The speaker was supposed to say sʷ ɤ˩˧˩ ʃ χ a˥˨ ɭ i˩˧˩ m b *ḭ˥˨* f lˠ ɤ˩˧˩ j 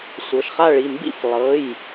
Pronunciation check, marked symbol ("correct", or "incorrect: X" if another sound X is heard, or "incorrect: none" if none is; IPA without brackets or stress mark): correct